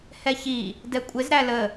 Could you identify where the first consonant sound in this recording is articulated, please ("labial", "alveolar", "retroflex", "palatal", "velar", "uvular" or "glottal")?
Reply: glottal